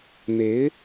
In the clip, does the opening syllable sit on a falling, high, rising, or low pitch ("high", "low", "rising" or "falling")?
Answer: rising